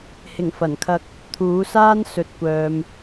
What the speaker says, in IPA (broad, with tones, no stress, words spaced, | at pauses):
hɪ˨˩ŋfɐ˨˩nkʰɐ˧k̚ | t̪ʰuː˨˥saː˥n sɵ˧t̚kʷœː˧m